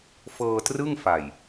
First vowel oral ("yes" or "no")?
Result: yes